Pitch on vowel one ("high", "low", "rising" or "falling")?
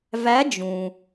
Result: rising